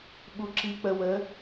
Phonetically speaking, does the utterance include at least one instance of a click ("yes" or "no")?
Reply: yes